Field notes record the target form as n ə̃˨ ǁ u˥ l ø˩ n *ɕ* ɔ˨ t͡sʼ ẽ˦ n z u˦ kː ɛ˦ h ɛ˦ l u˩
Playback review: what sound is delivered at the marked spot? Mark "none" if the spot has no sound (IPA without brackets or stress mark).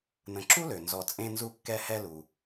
z